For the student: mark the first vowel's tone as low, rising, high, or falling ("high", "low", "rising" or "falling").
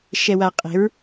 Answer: low